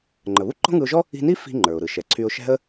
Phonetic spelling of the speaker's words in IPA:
ŋ͡ǃ ə˩ β u˥ ǃ ɔ̤˥ ŋ ɯ˧ ʊ̯ ʒ ɔ˥ | i̤˧ n i˥ f i̤˧ ŋ͡ǃ ə˞˩ ʊ̯ ɾ ɯ˩ ʃ ɛ˩ ǀʰ y˧ ʊ̯ ʃ ɛ̤˥ ə̯

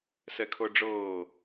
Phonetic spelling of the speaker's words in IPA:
s ɛ kʰ ɤ ɖ͡ʐ ɤː

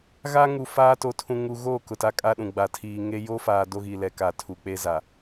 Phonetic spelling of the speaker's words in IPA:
ɣ a˦ ŋ u˨ f aː˦ t o˨ tʰ ũ˨ ŋ u˨ ɣ oː˦˨ k ʊ˨ t a˦ kʼ a˦ ɗ ũ˨ ɡ͡b a˨ tʰ iː˨ ŋ e˦ j o˦ f aː˨ d o˦ ɣ iː˨ l ɛ˨ k a˨ tʰ u˨ k͡p e˦ z a˨

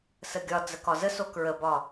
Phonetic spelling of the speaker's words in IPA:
s ə ɡʲ ɒ d͡z ə k ɒ z ə s o k ɹ ə b ɒ

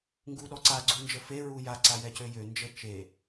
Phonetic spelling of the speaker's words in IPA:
ŋ ɡ u ɗ ɔ ǀ a ɡ͡ǀ u n d͡ʒ ə f e ɹ u j a ǀ a j ɛ c ø j ø n d͡ʒ ə t͡ʃ e

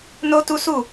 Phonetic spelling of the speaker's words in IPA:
n o˦ t u˦ s u˦˨

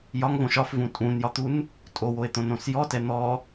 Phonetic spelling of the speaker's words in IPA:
j ɒ ŋ v õ ʃ ɒ f v ũ tʼ ũ n j ɒ t̪ u n | tʼ o w o e̯ t̪ õ n õ s j ɔ t ɛ n̪ ɔ

